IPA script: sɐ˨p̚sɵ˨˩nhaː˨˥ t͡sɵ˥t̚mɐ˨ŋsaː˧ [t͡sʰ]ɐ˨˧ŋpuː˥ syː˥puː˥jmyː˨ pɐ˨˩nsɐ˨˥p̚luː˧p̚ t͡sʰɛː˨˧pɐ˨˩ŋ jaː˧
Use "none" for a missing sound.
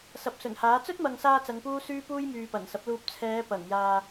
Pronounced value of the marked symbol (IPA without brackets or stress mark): t͡s